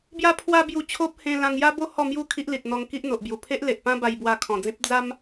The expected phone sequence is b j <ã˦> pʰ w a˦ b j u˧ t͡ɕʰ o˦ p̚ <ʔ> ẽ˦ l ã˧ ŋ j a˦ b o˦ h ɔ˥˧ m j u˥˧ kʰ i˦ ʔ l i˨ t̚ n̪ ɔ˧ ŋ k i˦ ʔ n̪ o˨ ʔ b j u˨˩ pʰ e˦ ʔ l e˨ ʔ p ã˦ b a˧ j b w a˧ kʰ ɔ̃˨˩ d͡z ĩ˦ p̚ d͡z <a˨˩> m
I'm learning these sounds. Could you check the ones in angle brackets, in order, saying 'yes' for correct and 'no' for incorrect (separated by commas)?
no, no, no